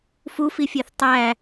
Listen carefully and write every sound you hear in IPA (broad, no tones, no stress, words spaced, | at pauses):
fufifʲeθ tˤæ